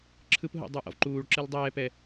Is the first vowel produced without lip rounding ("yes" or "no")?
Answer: yes